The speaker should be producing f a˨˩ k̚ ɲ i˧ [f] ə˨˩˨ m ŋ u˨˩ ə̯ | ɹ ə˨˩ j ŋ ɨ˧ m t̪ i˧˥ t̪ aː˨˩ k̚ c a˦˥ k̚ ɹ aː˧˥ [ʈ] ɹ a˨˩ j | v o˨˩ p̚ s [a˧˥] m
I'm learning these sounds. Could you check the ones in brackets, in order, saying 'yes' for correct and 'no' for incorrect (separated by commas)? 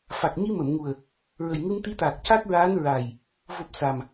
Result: no, no, no